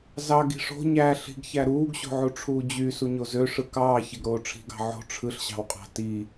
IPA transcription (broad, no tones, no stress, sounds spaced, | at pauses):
z ɑ ɡ i̤ ʂ o̤ ɲ æ ɬ i̤ ɡ ç æ ɾ uː ɡ ɕ o̤ ʕ u ʈ͡ʂʰ uː d͡ʑ y s u ɲ o z ø ʂ ɯ k ɑː ç e ɡ ɾ oː ʈ͡ʂʰ i̤ ɡ ɑ̤ ʕ o̤ ʈ͡ʂʰ ɯ ɬ ɕ ɑ̤ w qʼ ɑ̤ t i